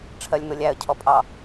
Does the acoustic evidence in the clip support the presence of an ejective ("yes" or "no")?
yes